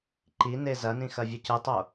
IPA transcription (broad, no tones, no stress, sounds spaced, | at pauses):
ǃ i n e z ɐ n ĩ x ɐ vʲ ɵ c ɨ tˤ o